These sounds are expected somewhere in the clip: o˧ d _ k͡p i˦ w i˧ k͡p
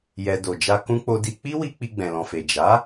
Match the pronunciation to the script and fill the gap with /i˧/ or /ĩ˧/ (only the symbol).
i˧